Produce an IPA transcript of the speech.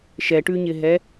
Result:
ʃ ɛ ʈ ʉ ɲ ɪ ɦ ɛ

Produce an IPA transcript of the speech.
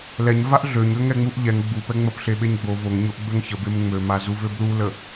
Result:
l ɛ ɲ v a ʔ ɮ ø ɲ ø ŋ ɛ ŋ͡m u ʔ ʎ ɛ ŋ ɡ͡b u p ɛ ŋ͡m ə p ɬ e ɓ e ɲ ɡ͡b o v o ŋ ɲ o ʔ ɡ͡b ø ŋ ç ə b e m ŋ͡m ø m a z u v ø b l u l ə

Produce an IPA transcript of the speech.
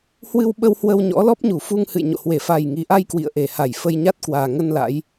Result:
h w ɨ˧ w ɓ ə˧ w h w ə˧ w ɲ ɔ̰˧˥ l ɔ˦˥ p̚ ɲ u˧˩ f u˧ ŋ h ɨ̰˧˨ j ɲ o̰˧˨ h w e˧˩ f a˨˩ j ŋ i˨˩ ʔ a˧ j k w ḭ˧˨ ə̯ ʔ e˧˩ h a˧˩ j f ə˧ j ɲ a˦˥ t̚ k w aː˨˩ ŋ ə˧ n l a̰˧˥ j

